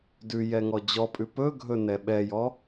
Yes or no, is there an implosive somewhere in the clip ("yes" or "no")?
yes